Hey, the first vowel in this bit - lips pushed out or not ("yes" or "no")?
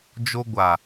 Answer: yes